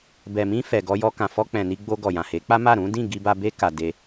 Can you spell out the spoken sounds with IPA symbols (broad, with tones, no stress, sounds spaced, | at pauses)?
b ɛ˨ m ĩ˧ f ɛ˨ ɡ ɔ˧ j ɔ˧ k ã˨ f ɔ˧ k͡p ɛ̃˨ n i˧ ɡ͡b o˧ ɡ ɔ˨ j ã˨ h e˨˦ k͡p a˦ m a˦˨ ɾ ũ˨˦ d ĩ˦˨ ɡ i˧ b a˧ b e˦ k a˧ d e˧